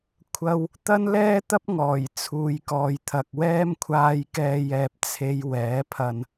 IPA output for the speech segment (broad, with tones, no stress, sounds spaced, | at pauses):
kʷʰ ɐ˨ w | t̪ ɐ˥ n l ɛː˥ t̪ ɐ˥ p̚ ŋ ɔː˨˩ j t͡sʰ uː˨ j k ɔː˨ j t̪ʰ ɐ˨ k̚ w ɛː˥ m kʷʰ aː˧ j k ɛː˧ j ɛː˨ p̚ t͡sʰ e˨˧ j w ɛː˨˥ pʰ ɐ˧ n